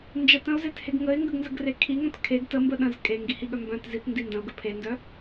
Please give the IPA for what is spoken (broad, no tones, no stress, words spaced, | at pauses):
nd͡ʒətə̃ʊ̯zetheɡ ŋəɪ̯ŋɡəɡnzəɡre kʰiŋœ̃t kʰeɡ təmbə ɗə̃z kʼeŋɡihiɠœ mbœ̃t zitndi ndə̃ʊ̯ɡə pʰendœ